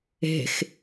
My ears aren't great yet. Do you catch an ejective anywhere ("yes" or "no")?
no